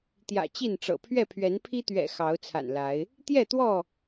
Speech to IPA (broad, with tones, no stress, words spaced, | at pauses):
t̪jä̰˨˩t͡ɕi˥˨nʈ͡ʂɤ̰˨˩ pʰɥɛ˥˨pʰɥɛ˨˦npʰi˦t̪ɥɛ̰˨˩ xɑ˨˦ʊ̯t͡sʰa̰˨˩nla˨˦ɪ̯ | t̪jɛ˥˨t̪wɔ˥˨